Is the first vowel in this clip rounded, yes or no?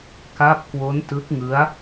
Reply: no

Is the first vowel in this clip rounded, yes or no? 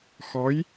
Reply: yes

